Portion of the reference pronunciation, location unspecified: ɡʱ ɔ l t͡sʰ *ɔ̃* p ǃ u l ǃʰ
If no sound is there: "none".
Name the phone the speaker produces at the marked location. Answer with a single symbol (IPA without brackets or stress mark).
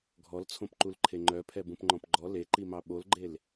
õ